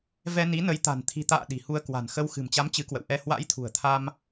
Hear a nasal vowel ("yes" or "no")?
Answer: no